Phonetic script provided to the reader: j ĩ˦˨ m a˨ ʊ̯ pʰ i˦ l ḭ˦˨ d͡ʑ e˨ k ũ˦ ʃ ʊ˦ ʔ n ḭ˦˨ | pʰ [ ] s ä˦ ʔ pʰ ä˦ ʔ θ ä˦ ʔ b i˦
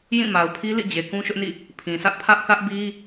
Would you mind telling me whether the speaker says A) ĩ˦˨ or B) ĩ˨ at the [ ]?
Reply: B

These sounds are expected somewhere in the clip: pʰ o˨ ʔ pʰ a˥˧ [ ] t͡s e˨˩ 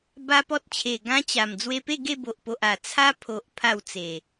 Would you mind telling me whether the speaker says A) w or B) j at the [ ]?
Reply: A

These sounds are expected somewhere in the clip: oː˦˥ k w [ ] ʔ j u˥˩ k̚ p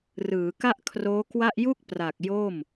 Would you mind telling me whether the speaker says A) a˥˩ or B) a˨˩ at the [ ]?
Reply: A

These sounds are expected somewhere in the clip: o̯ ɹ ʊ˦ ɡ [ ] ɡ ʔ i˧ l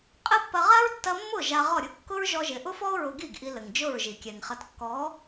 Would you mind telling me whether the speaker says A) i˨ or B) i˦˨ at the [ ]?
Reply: B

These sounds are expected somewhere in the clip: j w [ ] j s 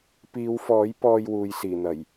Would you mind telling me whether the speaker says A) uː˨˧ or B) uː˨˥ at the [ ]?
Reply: A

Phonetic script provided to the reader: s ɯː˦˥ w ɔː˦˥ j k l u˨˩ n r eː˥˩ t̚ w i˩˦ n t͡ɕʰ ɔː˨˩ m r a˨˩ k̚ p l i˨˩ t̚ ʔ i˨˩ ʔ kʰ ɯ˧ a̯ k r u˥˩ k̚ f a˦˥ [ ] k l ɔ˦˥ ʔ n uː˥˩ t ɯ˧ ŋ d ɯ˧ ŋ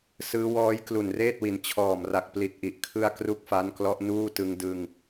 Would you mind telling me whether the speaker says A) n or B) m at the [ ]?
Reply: A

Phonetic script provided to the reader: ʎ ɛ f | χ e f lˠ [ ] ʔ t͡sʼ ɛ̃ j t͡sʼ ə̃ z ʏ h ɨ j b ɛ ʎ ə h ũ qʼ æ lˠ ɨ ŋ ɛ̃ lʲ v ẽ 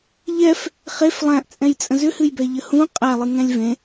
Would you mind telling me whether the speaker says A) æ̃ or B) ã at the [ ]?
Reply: A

